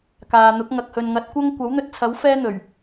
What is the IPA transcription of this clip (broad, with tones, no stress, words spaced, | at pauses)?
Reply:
kaː˨n̪ʊ˨˥k̚ ŋɐ˨k̚hɵ˨nŋɐ˨˥t̚kʷɐ˥ŋ kʷɐ˨˥wn̪ɵ˧t̚t͡sʰɐ˨˥w fɛː˥n̪ɵ˨˩ɥ